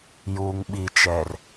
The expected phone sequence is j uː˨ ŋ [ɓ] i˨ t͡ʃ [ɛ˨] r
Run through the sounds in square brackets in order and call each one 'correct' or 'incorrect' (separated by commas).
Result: correct, correct